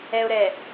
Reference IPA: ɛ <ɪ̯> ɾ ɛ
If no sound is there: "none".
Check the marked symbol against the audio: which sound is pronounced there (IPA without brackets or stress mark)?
ʊ̯